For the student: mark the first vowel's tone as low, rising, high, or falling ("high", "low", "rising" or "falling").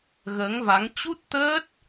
rising